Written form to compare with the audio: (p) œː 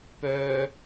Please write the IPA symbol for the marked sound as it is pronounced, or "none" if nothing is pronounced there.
p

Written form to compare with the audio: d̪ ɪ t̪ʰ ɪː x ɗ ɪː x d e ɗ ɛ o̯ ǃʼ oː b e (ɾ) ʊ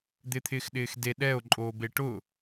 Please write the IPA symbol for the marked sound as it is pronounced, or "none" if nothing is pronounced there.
ʈ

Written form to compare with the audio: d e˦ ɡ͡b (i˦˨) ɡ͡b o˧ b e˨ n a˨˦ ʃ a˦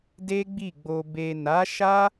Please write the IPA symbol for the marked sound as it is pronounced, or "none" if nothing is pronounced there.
i˦˨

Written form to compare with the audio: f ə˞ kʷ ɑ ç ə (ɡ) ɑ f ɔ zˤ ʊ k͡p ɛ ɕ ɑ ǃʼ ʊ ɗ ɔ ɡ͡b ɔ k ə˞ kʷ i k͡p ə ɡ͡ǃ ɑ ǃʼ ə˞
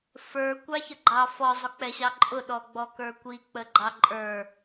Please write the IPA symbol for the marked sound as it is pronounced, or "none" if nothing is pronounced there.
ɡ͡ǃ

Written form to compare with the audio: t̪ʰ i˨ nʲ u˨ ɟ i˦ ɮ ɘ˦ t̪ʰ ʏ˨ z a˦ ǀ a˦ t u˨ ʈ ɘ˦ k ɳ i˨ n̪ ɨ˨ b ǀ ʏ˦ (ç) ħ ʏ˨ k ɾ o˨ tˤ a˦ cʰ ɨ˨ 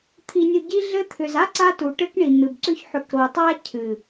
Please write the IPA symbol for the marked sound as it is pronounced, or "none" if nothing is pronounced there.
ç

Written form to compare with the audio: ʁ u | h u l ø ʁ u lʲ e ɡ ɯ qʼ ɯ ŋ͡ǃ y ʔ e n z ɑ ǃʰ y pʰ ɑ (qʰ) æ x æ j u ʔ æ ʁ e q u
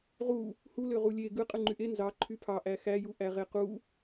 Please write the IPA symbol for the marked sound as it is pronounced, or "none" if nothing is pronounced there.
ʔ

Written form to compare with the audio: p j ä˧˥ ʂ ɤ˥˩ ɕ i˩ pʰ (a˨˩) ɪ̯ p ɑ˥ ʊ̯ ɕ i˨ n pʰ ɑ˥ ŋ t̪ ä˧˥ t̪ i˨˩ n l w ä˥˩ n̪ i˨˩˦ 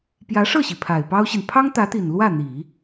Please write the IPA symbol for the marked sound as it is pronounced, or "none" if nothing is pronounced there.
a˨˩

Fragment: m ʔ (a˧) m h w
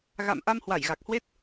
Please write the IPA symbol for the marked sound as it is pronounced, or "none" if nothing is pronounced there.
a˧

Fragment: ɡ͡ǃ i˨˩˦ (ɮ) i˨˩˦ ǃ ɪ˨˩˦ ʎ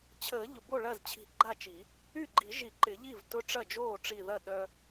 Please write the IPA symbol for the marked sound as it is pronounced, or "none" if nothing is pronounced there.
ʒ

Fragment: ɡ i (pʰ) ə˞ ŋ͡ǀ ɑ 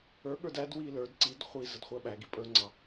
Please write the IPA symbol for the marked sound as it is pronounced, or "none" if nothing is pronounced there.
pʼ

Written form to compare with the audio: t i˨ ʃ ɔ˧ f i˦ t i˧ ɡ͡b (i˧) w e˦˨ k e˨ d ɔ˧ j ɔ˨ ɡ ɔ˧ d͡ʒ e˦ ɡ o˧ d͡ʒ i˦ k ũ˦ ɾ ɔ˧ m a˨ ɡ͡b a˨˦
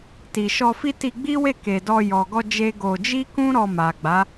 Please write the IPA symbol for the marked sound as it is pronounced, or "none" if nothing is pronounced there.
i˦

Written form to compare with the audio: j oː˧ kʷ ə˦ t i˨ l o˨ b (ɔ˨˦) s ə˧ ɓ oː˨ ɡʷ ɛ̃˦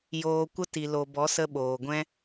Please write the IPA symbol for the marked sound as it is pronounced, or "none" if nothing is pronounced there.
ɔ˨˦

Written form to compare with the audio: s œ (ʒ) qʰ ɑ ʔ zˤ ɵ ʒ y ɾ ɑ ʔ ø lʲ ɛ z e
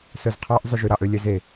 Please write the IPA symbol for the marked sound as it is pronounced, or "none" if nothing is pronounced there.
z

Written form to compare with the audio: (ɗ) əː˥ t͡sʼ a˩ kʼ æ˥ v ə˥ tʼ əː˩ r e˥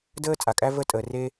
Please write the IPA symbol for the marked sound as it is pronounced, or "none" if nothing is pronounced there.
d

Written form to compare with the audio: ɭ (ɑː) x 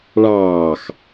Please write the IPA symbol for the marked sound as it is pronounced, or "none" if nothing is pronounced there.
ɑː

